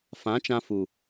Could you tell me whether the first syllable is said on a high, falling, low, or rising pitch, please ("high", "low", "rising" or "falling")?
rising